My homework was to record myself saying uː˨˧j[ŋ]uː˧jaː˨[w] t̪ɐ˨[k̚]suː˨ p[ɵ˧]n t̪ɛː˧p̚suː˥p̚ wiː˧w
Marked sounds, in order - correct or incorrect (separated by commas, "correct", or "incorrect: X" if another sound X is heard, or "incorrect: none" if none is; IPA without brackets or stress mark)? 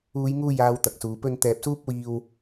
correct, correct, correct, correct